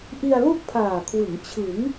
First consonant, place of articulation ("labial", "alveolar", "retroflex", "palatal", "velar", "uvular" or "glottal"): glottal